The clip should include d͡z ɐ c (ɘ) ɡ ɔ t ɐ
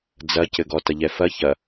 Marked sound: correct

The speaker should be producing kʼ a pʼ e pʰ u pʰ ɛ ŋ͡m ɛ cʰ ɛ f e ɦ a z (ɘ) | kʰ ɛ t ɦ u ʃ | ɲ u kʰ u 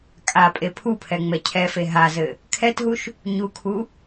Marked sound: correct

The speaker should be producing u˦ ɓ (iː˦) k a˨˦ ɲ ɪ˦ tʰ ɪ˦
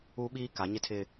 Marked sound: correct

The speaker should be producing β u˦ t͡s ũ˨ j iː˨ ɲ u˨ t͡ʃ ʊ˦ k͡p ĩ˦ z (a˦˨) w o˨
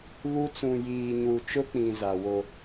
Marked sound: incorrect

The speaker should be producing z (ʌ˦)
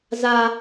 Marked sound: incorrect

